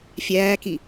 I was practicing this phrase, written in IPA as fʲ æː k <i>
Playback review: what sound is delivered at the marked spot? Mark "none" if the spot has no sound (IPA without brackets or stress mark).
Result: i